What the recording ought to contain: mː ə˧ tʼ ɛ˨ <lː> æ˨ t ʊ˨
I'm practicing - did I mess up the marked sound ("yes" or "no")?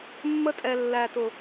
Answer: no